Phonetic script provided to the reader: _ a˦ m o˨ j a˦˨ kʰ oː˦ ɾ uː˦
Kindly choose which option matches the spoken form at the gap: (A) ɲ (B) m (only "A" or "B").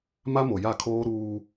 B